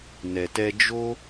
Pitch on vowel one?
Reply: low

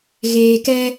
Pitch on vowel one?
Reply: low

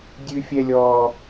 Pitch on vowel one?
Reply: high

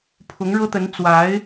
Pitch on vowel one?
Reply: rising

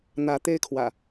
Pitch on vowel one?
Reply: rising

